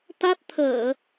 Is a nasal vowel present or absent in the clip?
absent